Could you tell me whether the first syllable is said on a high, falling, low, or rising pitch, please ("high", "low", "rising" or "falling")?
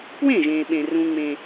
falling